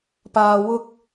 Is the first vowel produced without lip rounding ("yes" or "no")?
yes